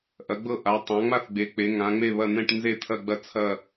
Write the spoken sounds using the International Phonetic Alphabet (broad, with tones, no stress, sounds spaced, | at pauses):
ʔ ɐ˩˧ ɡ͡b ɤ˦˨ ʔ a˩˧ tˤ ã˩˧ ŋ͡m a˦˨ θ ɡ͡b e˩˧ k͡p e˩˧ ŋ ã˩˧ ŋ͡m e˦˨ β ɐ˦˨ n̪ ɛ̃˦˨ ʈ n z e˦˨ t̪ʰ ɐ˦˨ ɡ͡b ɐ˦˨ t͡sʰ ɐ˦˨